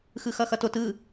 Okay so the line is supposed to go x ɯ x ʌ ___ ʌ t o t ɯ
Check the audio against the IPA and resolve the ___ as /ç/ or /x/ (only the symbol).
x